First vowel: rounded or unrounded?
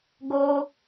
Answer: rounded